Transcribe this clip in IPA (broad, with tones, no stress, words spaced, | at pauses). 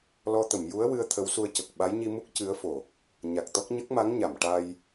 lɔ˧t̪ə˨˩˨mju˧˥ə̯ wɨ˧ə̯ t̪ʰə˧˥wsu˧ə̯cə˨˩k̚ ɓa˧˥jɲi˧mu˦˥k̚ cɨ˧˥ə̯ fo˨˩˨ | ɲa˨˩k̚t̪ɔ˦˥k̚ ɲə˦˥k̚ma˧˥ŋɲa˨˩˨m ʈa˧j